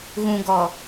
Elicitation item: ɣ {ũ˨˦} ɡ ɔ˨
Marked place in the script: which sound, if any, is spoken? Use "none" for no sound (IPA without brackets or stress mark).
ũ˨